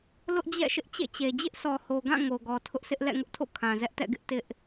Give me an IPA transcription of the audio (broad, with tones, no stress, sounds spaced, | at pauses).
l ʊ˦ ʔ d͡ʑ ɛ̰˦˨ ʃ ɪ˦ ʔ t͡ɕ ḛ˦˨ t͡ɕ e˨ d͡ʑ ɪ˦ ʔ sʰ ɔ˨ h o˨ ɡ ã˦˨ ŋ o˨ ɡ ɔ˨ tʰ ʊ˦ ʔ s ɪ˦ ʔ l ɛ̰˦˨ ŋ ʊ˦ ʔ tʰ o̰˦˨ kʰ ã˨ z ɛ˦ ʔ t ɛ̰˦˨ ɡ ɪ˦ ʔ t ɪ˦ ʔ